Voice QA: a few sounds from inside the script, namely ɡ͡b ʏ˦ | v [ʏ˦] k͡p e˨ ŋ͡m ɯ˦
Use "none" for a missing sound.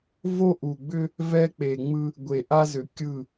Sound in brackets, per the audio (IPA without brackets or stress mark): ɛ˦